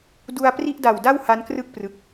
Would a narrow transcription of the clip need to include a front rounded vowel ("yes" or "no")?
no